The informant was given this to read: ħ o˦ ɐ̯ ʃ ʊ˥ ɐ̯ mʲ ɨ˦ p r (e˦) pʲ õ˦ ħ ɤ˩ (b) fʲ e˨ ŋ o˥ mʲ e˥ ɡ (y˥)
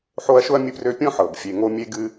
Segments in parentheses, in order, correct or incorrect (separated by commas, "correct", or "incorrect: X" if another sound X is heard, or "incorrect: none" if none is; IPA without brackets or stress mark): incorrect: ø˦, correct, incorrect: ɨ˥